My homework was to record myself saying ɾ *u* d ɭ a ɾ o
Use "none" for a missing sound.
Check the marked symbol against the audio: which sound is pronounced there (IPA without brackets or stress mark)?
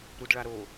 u